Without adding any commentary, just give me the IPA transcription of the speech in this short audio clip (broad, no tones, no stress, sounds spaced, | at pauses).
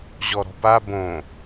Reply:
ʑ ɔ ɾ ɔ̤ p a b õ